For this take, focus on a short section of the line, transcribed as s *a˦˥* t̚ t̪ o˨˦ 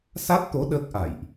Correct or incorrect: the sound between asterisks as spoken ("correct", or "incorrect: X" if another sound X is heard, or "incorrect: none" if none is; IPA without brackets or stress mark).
correct